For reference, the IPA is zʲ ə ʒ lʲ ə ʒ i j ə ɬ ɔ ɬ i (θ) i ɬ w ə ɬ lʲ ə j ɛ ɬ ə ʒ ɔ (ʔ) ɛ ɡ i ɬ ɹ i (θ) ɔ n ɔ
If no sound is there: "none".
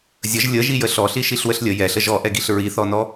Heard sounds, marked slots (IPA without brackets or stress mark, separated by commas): ʃ, ʔ, θ